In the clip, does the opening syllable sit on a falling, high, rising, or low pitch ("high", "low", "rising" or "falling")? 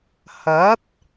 rising